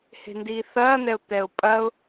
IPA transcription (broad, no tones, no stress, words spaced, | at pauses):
he̤ndiːθɐːn̪ɛʊ̯ t̪ɛʊ̯pʼɐʊ̯